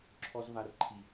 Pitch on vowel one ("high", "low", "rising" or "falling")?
high